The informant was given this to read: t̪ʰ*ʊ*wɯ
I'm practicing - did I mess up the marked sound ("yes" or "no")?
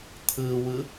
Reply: yes